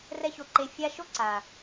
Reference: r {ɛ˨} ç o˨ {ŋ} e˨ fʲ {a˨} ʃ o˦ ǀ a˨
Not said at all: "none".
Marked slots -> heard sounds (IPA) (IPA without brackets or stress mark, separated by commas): ɛ˧, ǃ, a˧